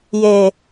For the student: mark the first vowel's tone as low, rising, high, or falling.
low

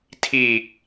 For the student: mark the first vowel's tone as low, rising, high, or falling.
low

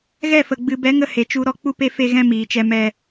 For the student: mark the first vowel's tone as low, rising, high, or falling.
falling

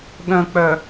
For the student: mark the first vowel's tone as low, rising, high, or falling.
low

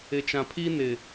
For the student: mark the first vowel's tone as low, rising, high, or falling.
low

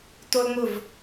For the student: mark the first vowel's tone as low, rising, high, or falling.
high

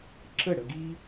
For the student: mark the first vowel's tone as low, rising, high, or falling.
falling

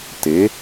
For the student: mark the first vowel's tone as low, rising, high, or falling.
rising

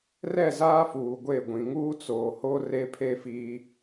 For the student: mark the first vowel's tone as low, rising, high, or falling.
falling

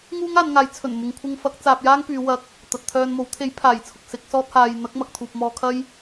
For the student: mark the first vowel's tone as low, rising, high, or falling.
high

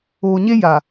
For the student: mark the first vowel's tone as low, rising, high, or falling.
low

